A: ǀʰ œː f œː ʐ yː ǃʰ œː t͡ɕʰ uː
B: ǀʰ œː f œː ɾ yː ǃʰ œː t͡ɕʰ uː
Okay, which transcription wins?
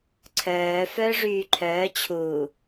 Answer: A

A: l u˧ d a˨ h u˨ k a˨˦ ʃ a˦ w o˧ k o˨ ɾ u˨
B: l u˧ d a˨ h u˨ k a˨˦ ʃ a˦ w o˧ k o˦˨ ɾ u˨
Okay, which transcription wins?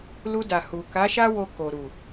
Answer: A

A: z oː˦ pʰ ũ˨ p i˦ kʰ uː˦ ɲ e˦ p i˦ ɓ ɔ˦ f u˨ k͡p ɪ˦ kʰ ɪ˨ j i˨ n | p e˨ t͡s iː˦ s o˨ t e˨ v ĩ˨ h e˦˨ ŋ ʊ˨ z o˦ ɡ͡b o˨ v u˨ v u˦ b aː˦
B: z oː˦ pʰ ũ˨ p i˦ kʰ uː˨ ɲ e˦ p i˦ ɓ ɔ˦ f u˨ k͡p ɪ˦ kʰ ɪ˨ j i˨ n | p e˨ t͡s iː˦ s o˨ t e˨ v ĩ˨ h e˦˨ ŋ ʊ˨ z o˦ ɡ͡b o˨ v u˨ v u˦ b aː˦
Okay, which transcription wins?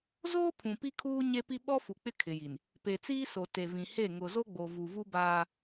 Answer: A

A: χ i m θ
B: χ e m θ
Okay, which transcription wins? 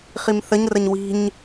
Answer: A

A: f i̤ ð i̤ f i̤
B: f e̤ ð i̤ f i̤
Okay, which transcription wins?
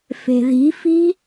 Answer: B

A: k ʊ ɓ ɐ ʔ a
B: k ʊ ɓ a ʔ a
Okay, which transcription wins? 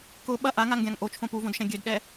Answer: A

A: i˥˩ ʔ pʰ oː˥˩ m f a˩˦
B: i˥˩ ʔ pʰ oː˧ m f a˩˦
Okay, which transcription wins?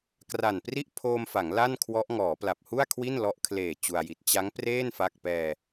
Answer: B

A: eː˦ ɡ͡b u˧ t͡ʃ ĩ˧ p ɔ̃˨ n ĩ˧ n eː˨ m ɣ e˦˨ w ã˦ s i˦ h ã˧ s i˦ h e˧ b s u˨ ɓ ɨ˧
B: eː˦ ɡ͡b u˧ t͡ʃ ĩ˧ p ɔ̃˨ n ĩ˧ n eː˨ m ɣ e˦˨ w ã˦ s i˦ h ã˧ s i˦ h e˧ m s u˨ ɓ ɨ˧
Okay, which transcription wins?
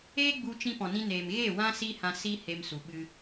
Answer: B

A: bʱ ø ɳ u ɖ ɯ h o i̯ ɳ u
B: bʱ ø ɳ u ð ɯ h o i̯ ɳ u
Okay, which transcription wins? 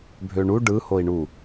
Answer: A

